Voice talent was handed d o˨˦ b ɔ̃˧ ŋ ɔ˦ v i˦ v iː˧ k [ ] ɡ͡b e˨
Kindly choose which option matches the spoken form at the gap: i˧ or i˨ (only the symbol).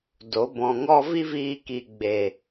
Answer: i˨